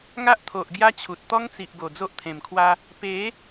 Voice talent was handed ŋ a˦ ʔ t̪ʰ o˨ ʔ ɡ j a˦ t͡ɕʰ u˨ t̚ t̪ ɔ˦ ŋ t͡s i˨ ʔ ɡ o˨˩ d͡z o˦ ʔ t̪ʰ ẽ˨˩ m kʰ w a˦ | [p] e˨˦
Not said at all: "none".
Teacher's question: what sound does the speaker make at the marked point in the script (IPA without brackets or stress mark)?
p